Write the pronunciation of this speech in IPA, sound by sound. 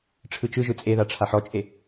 ʈ͡ʂʰ ɯ t͡ʃ ɯ ʒ ɯ t͡sʼ e ð a ʈ͡ʂʰ a ħ ɔ t͡ʃʼ e

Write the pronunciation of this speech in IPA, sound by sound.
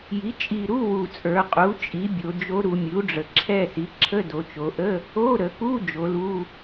j i˩˥ t͡ʃʼ i˨˩ ɾ u˧˥˧ w u˨˩ t͡sʼ ə˞˩˧ qʼ u˩˥ t͡ʃʼ i˩˥ bʲ o˩˧ d͡ʒ o˧˥ ɾ u˩˧ mʲ u˩˥ ɖ͡ʐ ə˨˩ ǁʰ ɛ˦˨ s i˩˥ ǁʰ ə˧˥˧ d o˩˧ t͡ʃ o˩˧ ʔ ə˧˥˧ | o˧˥˧ ɾ ə˩˧ k u˧˥˧ d͡ʒ o˩˧ l u˧˥˧

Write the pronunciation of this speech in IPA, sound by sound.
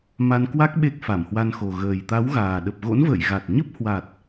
m a˧ n k w a˦˥ k̚ ɓ e˦˥ k̚ f a˧˩ m h w a˧ n x o˨˩ ɣ əː˨˩ j t̪ a˨˦ w ɣ aː˨˩ ɗ ə˨˩ p̚ ɣ o̰˧˥ n v ə̰ː˧˨ j ɣ a˨˩ t̚ ɲ ə˦˥ p̚ h w a˨˩ t̚

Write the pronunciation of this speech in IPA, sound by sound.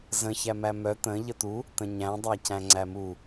z ə̃ ç æ m æ m œ t̪ ə̃ ʎ ə t̪ u | t̪ ə̃ ɲ æ̃ dˤ æ c æ̃ ŋ͡ǀ æ m u

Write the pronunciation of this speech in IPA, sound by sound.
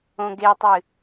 õ ɡ e tˤ ɨ

